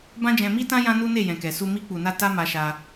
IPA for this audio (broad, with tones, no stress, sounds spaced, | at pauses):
b ã˦ d͡ʒ ɛ̃˧ m i˦ t ã˦ j ã˦ n u˦ n e˦˨ j ɛ̃˨ k ɛ˨ s u˧ m i˧ k͡p u˨ n a˧ t a˦ m a˧ ʃ a˧